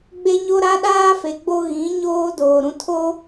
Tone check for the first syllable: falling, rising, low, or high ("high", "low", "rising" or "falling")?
high